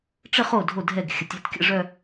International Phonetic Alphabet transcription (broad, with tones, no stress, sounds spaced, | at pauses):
ʈ͡ʂ ə˥˧ χ o˥˩ dʱ o˥˩ dʱ ɛ˥˩ ɡ xʲ ə˨˩˦ tʲ œ˥˩ t kʲ ə̰˥˧ ʐ œ˥˧